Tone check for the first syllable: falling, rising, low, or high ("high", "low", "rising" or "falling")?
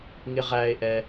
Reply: low